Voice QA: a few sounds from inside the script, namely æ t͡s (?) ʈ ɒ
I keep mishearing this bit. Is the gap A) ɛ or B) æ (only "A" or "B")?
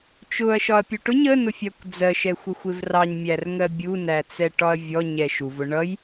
A